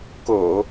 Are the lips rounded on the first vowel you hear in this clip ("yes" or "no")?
yes